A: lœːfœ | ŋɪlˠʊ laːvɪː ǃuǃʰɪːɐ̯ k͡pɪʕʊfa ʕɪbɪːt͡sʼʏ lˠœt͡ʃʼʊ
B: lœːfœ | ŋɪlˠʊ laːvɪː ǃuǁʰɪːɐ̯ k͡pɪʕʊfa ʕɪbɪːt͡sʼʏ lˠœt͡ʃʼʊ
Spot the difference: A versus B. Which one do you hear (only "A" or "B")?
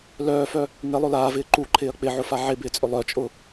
A